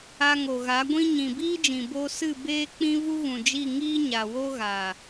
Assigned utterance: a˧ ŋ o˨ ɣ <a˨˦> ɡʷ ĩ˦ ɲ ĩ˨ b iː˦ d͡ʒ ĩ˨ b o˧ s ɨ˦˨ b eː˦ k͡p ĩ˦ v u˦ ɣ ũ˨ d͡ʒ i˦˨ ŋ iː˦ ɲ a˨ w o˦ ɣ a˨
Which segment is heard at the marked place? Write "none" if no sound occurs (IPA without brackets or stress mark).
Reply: a˨˦